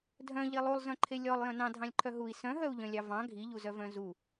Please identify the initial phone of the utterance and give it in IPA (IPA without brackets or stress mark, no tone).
dʱ